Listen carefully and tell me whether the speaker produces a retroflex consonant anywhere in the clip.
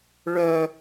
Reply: yes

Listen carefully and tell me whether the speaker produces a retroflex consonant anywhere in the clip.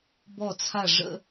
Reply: yes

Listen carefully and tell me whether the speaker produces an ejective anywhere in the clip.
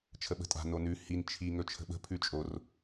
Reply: yes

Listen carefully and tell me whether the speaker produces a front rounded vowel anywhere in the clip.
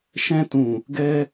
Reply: no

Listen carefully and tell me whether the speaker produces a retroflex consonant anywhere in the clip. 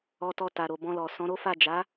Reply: no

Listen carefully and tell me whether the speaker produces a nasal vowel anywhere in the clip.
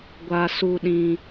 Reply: yes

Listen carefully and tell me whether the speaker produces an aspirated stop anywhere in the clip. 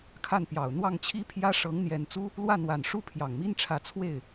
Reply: yes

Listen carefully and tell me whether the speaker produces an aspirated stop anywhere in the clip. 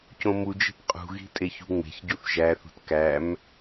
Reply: no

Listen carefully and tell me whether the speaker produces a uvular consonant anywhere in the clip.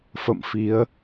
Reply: no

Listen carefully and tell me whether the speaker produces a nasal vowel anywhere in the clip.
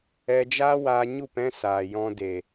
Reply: yes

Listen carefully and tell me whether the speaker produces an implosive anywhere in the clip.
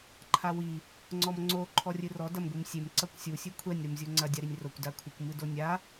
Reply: no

